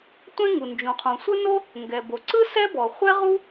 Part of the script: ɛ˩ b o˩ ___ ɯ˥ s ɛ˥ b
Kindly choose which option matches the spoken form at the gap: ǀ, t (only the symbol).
ǀ